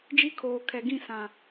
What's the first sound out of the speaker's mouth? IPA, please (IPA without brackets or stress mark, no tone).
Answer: d͡ʒ